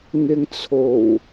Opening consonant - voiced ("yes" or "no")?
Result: yes